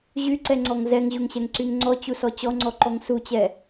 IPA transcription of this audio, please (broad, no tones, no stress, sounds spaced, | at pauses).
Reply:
ʑ y ǀ ɛ ŋ͡ǀ ɔ ŋ z ɛ ŋ ʑ u ŋ ɕ ɛ ŋ ǀ y ŋ ŋ͡ǀ ɔ t͡ɕ u s ɔ t͡ɕ ɔ ŋ͡ǀ ɔ ǃ ɔ ŋ s u t͡ɕ ɛ